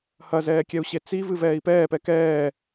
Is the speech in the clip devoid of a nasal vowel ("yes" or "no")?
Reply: yes